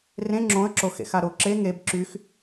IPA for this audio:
r ẽ ŋ͡ǁ õ ə̯ ǁ o x ḛ x a ɾ o ǁ e ŋ e b ǁ y x

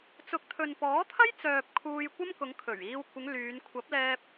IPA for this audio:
t͡s ʊ˨˥ k̚ t̪ʰ ɵ˨ n p ɔː˨˥ t̪ʰ ɐ˥ j t͡s œː˨ p̚ kʰ uː˧ j kʷ ɐ˥ m k ʊ˨˧ ŋ kʰ ɵ˨˩ ɥ iː˧ w kʷ ɪ˨˧ ŋ l yː˨˧ n kʷʰ ɐ˨˥ p̚ l ɛː˧ p̚

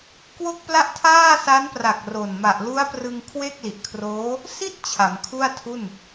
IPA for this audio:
k w o˥˩ k̚ p l a˥˩ ʔ tʰ aː˥˩ s a˦˥ n p r a˨˩ k̚ r o˨˩ n m a˨˩ ʔ l u˦˥ a̯ p r ɯ˧ ŋ kʰ w e˥˩ k̚ l i˨˩ ʔ kʰ r oː˦˥ | s i˥˩ t̚ t͡ɕʰ a˩˦ m kʰ u˥˩ a̯ tʰ u˥˩ n

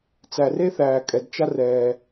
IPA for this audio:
t͡s æ˩ r e˥ θ æː˩ kʼ ɛ˩ d t͡ʃ a˥ r ɛː˩

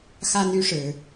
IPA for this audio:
x a˦ n y˦ ʂ ɻ̩˨˦

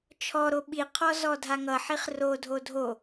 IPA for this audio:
t͡ʃʰ ɔ ɾ o ɓ i qʰ ɔ z ɔ dʱ a ŋ ʌ ħ i χ r o dʱ o dʱ o

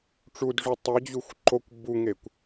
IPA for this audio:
ʈ͡ʂ u d ʐ o tˤ e d͡ʑ u xʷ ǃ o kʷ b u ŋ e kʷ

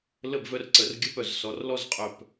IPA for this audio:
l ə˥˨ b v œ˥˨ r ǀ ə˨˦ r ɡʲ ə˦˥ p œ˧˩˧ z s ɔ˨˦ r l ɔ˥˨ z qʼ œ˧˩ p

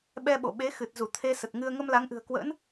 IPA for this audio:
ɓ ɛ˧ ɓ o̰˧˨ ɓ e˨˦ x ɨ˨˩ t̚ z u˧˩ t̪ʰ e˧ s ə˨˩ t̚ ŋ ɨ˧ ə̯ ŋ ə˧ m l a˨˦ ŋ ʔ ɨ̤˨˩ ə̯ k w ə̰ː˧˥ n

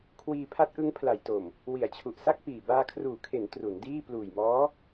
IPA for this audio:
kʰ w iː˧ pʰ a˦˥ t̚ ʔ ɯ˦˥ ŋ pʰ l a˩˦ j t o˨˩ m | w i˩˦ a̯ t͡ɕʰ u˨˩ ʔ s a˥˩ k̚ p iː˨˩ b aː˧ kʰ r uː˨˩ kʰ e˩˦ n t r u˩˦ n d iː˥˩ p l uː˨˩ j m ɔː˦˥

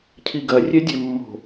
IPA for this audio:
cʰ i ɡ ɐ rʲ ɛ dʲ ɛ mː o̤

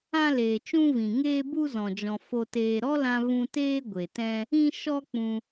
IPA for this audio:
ã˦ l eː˨ t͡ʃ ũ˦ v ĩ˨ ŋ eː˦ b u˦ z ɔ̃˨ d͡ʒ ɔ̃˨ f o˨ t eː˨ ɾ ɔ˦ l ã˧ v ũ˧ t eː˦ ɡʷ e˨ t ɛ̃˦ | ĩ˦ ʃ ɔ˦ k͡p ũ˧

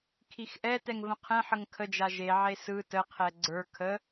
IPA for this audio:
kʰ i x ʔ ɛ t ɛ ŋ v ə̃ qʰ ɛ̃ ħ ə ŋ kʰ ə d͡ʒ a ʒ e ʕ e s ɯ t ə qʰ ɛ ɡ͡ǀ ə˞ kʰ ə

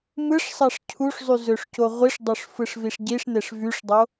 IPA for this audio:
m ɯ ʂ sˤ ɑ ʂ cʰ u ʂ zˤ y z ø ʂ c o ʁʷ i ʂ dˤ o ʂ f ɯ ʂ v i ʂ ɟ i ʂ n e ʂ v y ʂ dˤ o

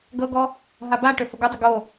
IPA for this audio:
ɡ ɤ ɡ ɔ | ɦ a b a ʈ ø f ə ɡ ɯ dˤ ə ɡ o

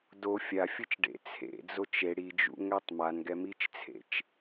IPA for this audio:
d o fʲ a fʲ ɯ t͡ʃ ɖ ḛ t͡sʰ ḛ d͡z o t͡ʃ e ɽ i d͡ʒ ṵ ŋ ɛ tˤ m a n ɡ ɛ m i t͡ʃ t͡sʰ ḛ t͡ʃ

